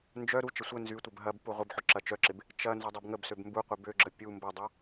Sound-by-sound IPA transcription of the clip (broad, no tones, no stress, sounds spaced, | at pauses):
n d͡ʒ œ ɾ u t͡ʃ ə sʷ ə n z y tʷ ə b ɦ ɐ b p u ʁʷ ɪ b ħ ʊ ǁ ɐ t͡ʃ œ ǁ ɪ b | t͡ʃ ɐ n z ʊ dˤ ɐ b ŋ ə b s ø b m b u qʷ ɪ b ø ɡ͡ǁ ə pʲ u m b ɐ dˤ ɐ